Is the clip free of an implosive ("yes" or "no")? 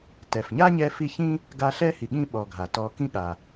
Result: no